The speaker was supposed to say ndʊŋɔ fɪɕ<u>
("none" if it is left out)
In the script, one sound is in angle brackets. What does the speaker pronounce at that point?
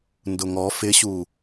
u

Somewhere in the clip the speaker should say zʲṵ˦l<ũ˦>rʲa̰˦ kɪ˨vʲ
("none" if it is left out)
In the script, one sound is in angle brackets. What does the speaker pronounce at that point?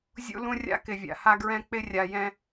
ũ˦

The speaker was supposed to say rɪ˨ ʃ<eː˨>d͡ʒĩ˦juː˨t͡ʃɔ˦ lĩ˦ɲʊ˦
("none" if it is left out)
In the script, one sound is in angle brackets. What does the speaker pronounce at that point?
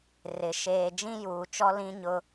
eː˨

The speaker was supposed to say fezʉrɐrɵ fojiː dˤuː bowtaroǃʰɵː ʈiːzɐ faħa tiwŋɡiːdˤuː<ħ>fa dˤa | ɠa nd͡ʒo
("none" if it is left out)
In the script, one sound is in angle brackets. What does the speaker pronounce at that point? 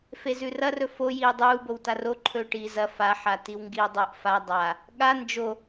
ʔ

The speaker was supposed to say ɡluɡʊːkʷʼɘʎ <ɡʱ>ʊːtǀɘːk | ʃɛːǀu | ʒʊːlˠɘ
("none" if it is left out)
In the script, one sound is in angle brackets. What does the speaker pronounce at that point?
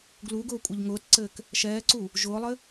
ŋ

